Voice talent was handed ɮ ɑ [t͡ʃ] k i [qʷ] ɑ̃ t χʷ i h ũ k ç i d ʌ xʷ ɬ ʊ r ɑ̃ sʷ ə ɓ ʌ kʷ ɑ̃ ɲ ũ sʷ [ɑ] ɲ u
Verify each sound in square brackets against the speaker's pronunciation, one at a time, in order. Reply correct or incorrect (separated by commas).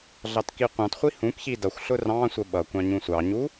incorrect, correct, correct